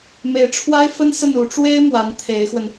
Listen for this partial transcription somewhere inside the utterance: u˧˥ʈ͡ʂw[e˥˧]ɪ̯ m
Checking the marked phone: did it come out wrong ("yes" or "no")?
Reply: yes